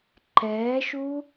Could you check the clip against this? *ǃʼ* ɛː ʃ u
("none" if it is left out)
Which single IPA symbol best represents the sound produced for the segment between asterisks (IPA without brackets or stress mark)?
ǃ